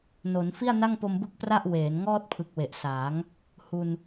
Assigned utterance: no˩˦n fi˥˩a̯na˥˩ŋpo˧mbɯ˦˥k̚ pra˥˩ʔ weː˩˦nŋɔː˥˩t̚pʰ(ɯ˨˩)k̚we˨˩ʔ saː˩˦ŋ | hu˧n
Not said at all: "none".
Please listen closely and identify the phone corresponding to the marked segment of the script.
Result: ɯ˨˩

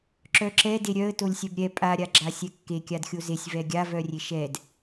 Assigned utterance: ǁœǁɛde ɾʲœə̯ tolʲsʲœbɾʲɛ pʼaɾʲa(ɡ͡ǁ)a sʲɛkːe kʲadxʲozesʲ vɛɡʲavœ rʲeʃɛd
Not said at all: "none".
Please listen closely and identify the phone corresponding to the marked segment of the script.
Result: ɡ͡ǁ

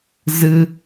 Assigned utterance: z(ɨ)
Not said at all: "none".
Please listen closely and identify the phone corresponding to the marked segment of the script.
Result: ɨ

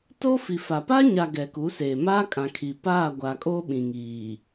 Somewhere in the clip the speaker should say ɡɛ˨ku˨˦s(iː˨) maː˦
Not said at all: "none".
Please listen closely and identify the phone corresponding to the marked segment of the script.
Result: eː˨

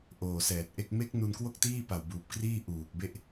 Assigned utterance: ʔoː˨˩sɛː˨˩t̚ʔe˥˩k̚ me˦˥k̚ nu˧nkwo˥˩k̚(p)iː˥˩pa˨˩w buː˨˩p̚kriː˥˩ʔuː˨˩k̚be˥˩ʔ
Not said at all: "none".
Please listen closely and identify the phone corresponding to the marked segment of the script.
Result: t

